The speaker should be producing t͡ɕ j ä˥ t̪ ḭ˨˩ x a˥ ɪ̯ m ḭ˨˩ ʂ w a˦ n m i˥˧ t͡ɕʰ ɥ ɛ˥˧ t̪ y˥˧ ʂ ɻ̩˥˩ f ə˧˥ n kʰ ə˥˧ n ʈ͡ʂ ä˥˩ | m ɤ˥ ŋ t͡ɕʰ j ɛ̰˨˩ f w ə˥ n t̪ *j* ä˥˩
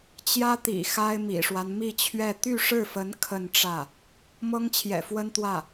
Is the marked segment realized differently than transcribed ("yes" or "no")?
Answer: yes